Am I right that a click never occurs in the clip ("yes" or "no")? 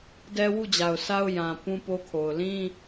yes